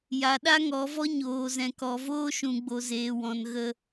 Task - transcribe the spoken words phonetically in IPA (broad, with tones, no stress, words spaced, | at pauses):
ja˨ɗa˦ŋɔ˨˦vɔ˦ ɲoː˨zɛ̃˨ kɔ˨voː˦ʃũ˨ɡ͡bo˨ zeː˨wɔ̃˨nɣə˧